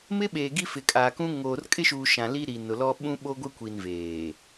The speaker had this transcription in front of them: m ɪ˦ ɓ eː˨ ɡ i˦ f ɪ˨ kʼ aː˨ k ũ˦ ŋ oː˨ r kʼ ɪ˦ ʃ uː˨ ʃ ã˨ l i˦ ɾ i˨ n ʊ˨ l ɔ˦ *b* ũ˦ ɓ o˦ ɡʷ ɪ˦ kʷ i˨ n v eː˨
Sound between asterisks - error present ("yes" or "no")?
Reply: yes